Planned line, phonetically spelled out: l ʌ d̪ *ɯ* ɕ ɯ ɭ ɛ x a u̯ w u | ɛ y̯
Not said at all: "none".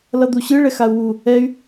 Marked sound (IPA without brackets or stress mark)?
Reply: u